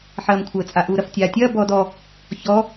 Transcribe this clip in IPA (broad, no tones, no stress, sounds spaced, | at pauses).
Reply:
ħ ɐː m kʷʰ əː t͡sʼ a ʔ uː ɾ ɐ f tʲ aː tʲ ɐː b ɔː d ɔ | ç ɔ